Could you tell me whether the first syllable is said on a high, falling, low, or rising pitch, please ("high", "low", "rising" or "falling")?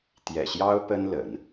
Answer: low